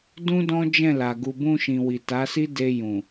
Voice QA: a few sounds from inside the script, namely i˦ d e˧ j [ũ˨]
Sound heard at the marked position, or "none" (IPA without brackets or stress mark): ũ˨